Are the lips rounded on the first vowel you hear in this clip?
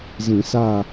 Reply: no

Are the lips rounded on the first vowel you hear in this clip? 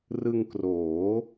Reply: no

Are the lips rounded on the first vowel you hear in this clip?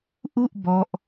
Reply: yes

